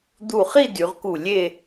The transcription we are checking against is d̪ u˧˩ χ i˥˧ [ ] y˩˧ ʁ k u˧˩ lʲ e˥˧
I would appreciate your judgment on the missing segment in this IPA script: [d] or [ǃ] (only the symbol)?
d